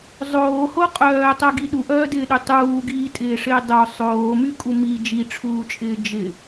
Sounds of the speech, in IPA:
zˤ oː h o qʼ œː tˤ œ ɡ i ɗ u ʔ œː d ɪː ɗ y tˤ uː ɡ iː tʼ ɪː ʂ ɪː dˤ o sˤ oː m y kʼ u m i d͡ʒ i ʈ͡ʂʰ uː t͡ʃʼ ɪː d͡ʒ ɪ

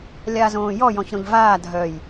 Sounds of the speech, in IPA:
lʲ a z õː j ɔ j ɔ̃ ç ɾ õ ʎ v aː dʱ œ j

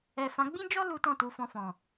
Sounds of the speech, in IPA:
ɛ˨ f ã˨˦ ɡ͡b ĩ˦ d͡ʒ ɔ˦ l u˦ t ɔ̃˦˨ t u˧ f ɔ̃˧ f ɔ̃˨

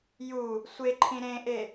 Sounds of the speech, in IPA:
j u | sʷ e ǃʰ ĩ ɾ ẽ ʔ e

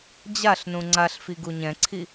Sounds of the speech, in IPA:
d͡ʑ a ɬ n ũ ŋ͡ǀ a ɬ f i ɡ u ɲ ɛ̃ ǀʰ i

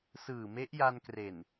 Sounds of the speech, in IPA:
s ɯː˨˩ m e˦˥ ʔ j a˧ n k r e˨˩ n

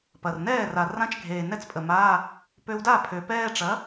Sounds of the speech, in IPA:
p ɐ˨˩ r n ɛː˥˩ r a˨˩ r ã˧˥˧ t͡ʃ ɡʱ eː˨˩ n ɛ˥˧ t͡s pʼ ə˨˩ m aː˧˥˧ | p ø˧ w d a˥˩ pʰ ø˨˩ p ɛː˥˧ ʈ͡ʂ ɐ˨˥

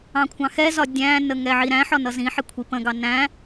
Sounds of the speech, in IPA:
ɑ̃ kʷʰ ɑ̃ x ɛ z ɒ dʲ æ̃ n ə ŋ ɛ ʕ i ɾ æ̃ ħ ɒ n ʌ z ĩ ħ ɪ kʷʰ i p ə̃ ɡ ɑ n æ̃

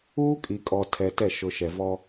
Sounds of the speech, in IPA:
uː˦ kʼ i˨ kʼ ɔ˨ tʰ ɛ˨ t ɛ˦˨ ʃ ʊ˨ ʃ ɛ˨ v ɔ˦

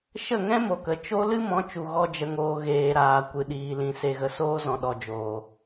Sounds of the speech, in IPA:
ʃ ə˦˨ ŋ ɛ̃˦ m o˨ k ə˨ t͡ʃ o˧ l ɨ˦ m ɔ̃˨˦ t͡ʃ u˨ ɣ ɔ˦ d͡ʒ ə˧ ŋ oː˧ ɣ eː˨ ɾ aː˨ kʷ ɨ˨ ɗ iː˨ l ĩ˨ s e˨ ɣ ə˨ s oː˧ z ɔ̃˨ ɗ ɔ˨ d͡ʒ oː˨

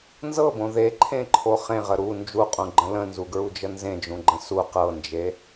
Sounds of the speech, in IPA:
n z ɤ b õ ð e ǃʰ ẽ ǃʰ o χ ẽ ʁ ə ɾ u n d͡ʒ u qʼ ũ ɡ͡ǃ ə̃ l ə̃ n z u ɡ ɹ u d͡ʒ ə n z ẽ d͡ʒ ũ ɡ͡ǃ ə̃ s u q ɤ n d͡ʒ e

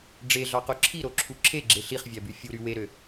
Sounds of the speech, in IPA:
ɖ͡ʐ e ɮ ɑ q o ǁʰ i ɾ o ǁʰ u ǁʰ e ɡ͡ǁ e ɬ i χ vʲ æ b y fʲ u ɾ y w e ɾ ø

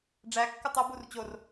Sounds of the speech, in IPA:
ɖ͡ʐ æ kː u tˤ u b u r t͡ɕ o r

